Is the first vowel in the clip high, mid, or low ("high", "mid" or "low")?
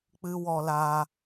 high